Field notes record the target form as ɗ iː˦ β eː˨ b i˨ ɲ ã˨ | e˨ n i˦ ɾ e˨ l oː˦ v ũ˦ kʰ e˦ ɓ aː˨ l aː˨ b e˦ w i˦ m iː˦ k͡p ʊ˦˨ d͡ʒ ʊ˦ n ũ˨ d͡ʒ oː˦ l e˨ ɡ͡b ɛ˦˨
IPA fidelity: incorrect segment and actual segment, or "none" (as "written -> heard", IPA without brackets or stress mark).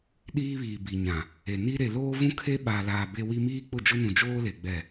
eː˨ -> iː˨